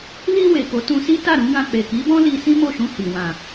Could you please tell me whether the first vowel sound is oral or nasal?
oral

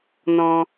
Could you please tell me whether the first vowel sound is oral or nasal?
nasal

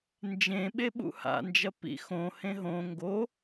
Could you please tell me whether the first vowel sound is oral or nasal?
nasal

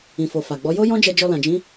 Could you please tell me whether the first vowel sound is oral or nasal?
nasal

